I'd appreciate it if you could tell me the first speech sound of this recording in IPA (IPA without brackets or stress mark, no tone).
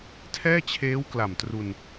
tʰ